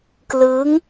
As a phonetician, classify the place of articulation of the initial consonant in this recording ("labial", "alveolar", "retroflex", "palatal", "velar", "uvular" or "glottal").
velar